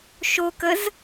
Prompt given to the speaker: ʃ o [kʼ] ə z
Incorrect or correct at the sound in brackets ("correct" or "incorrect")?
incorrect